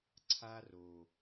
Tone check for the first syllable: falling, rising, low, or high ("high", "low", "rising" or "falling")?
high